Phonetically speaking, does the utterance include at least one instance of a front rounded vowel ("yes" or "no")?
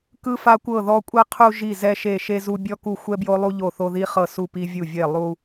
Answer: no